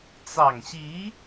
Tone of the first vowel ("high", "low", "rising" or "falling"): low